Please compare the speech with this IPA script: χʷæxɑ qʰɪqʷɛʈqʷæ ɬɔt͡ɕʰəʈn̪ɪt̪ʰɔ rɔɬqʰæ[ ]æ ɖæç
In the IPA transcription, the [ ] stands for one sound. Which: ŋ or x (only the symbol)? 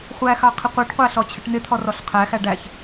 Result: x